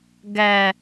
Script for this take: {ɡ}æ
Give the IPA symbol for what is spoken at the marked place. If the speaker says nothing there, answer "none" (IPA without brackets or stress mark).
ɡ